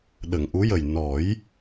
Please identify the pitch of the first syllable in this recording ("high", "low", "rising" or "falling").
low